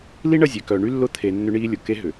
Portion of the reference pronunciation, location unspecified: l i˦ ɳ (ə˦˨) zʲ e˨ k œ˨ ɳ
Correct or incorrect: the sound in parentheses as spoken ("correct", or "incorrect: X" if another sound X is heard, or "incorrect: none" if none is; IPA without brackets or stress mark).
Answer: correct